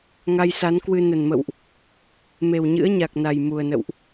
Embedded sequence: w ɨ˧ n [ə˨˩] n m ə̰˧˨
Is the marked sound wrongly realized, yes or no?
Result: no